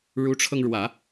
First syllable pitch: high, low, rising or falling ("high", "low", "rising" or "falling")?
rising